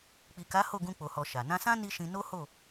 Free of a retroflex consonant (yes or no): yes